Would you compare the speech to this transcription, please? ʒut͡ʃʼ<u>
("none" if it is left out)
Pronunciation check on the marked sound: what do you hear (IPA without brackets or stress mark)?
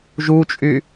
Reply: y